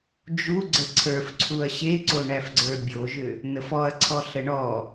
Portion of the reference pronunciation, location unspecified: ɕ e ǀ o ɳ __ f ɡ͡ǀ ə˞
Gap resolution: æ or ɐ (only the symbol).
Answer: æ